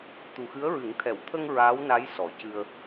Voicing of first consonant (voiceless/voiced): voiceless